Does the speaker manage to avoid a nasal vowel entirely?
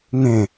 no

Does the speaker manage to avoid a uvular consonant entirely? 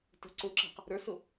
no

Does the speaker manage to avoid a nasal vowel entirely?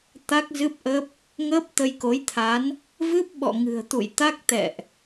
yes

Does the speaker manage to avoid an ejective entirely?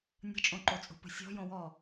no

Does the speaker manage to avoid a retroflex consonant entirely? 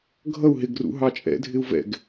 yes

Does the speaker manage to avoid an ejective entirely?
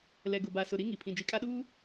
no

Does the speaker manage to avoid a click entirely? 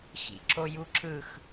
no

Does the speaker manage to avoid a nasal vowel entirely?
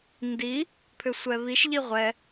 yes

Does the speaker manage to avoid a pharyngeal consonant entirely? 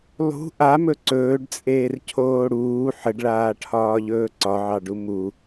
no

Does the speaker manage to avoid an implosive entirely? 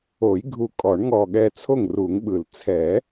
no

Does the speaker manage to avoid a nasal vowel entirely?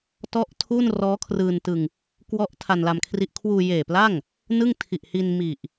yes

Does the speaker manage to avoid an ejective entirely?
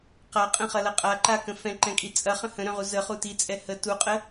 no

